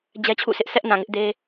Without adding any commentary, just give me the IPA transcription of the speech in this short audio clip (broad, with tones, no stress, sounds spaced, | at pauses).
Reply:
d͡ʑ ɛ˦ t͡ɕʰ ṵ˦˨ sʰ ɪ˦ ʔ s ɛ˦ ʔ n ã˨ ŋ ɪ˦ ʔ d e˦